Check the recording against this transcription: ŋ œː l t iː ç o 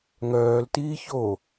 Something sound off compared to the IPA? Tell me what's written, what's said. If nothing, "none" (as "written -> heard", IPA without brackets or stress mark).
none